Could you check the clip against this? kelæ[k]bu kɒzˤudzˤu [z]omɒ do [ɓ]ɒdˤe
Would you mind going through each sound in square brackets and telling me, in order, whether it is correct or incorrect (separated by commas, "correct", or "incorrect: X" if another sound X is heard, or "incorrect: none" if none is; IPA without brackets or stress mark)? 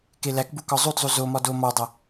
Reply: correct, correct, incorrect: m